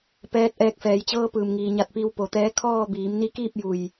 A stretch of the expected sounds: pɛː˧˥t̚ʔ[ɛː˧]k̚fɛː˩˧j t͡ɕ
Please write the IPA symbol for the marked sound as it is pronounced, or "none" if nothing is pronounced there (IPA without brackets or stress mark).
ɛː˧